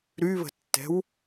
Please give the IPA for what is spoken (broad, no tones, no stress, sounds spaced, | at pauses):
ɾ y β ə̤ tː ɛ̤ w